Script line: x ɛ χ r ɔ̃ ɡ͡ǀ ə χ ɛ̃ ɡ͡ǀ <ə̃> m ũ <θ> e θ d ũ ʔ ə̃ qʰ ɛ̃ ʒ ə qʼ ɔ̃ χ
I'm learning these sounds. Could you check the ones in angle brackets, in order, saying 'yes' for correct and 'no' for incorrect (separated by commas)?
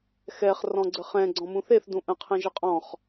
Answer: no, yes